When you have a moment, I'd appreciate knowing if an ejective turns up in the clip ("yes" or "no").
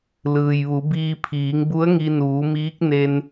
no